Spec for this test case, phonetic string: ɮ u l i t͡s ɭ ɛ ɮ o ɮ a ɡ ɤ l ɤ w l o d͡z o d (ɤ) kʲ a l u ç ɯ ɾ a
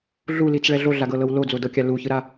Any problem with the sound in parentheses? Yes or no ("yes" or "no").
no